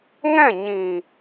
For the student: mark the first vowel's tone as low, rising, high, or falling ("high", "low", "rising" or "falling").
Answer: falling